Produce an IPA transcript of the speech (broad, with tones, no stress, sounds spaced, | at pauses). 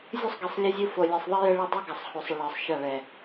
zʲ u˦ sˤ ɡ i˨ sˤ lʲ ə˦ zʲ u˦ f o˨ lʲ ɛ˨ sˤ ðˤ i˦ j ə˦ ɭ ɛ˦ dˤ o˦ ɡ a˨ sˤ h o˨ sˤ ə˨ ɭ ɤ˨ sˤ ʃ a˦˨ ɭ ɛ˨